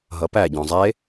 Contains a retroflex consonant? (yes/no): no